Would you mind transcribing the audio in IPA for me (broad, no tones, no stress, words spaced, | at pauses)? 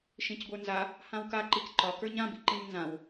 ʃĩcɡʷə˞nza | hãwka ǃicǃɒ kə˞ɲã biǃĩɲnzãw